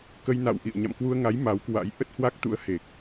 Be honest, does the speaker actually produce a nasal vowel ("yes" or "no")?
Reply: no